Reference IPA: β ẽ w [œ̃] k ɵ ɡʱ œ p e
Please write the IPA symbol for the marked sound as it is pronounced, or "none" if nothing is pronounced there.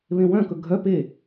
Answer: œ̃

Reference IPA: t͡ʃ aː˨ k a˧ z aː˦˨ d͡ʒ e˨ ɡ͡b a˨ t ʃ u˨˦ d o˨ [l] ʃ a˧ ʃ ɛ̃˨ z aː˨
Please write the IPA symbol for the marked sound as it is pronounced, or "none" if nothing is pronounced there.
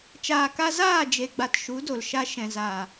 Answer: l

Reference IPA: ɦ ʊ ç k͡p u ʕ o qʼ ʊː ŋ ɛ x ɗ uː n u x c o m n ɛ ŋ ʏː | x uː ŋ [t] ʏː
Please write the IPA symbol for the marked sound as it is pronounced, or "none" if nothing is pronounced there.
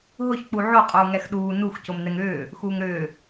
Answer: ɾ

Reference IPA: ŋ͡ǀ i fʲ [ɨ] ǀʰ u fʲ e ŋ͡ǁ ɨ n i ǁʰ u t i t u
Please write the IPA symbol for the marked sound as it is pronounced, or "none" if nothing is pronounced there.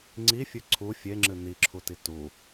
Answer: ɨ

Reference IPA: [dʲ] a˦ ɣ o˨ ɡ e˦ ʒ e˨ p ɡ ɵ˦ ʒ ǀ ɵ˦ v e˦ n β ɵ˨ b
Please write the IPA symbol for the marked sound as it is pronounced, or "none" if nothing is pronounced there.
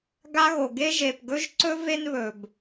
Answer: ɡ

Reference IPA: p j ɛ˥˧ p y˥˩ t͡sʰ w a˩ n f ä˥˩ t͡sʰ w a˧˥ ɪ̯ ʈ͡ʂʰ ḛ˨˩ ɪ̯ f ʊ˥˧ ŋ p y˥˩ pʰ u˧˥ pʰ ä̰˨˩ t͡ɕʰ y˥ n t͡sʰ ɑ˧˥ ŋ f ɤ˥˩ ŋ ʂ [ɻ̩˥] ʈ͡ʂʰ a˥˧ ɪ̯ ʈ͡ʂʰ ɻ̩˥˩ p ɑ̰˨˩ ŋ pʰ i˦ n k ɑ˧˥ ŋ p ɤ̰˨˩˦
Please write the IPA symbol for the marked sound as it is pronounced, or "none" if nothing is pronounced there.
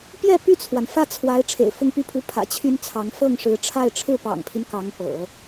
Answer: ɻ̩˧˥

